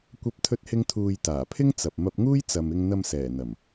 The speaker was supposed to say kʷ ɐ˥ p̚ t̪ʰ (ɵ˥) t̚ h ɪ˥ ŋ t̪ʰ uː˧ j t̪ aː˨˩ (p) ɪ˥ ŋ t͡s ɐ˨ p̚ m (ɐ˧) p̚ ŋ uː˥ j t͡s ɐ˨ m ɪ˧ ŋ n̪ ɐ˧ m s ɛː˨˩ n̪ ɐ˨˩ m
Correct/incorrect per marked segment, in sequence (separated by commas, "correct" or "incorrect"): correct, incorrect, correct